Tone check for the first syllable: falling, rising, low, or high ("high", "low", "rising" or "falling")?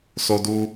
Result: high